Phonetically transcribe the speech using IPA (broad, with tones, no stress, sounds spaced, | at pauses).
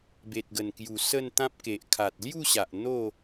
b e˨ t̚ ɡ ə˨˩ n k j u˨˩ s ə˥˧ n t̪ ã˦ p̚ k e˨ ʔ kʰ a˨ t̚ l j u˥˧ ɕ a˨ ʔ n̪ o˥˧